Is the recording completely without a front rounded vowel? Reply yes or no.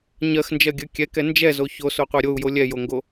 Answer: yes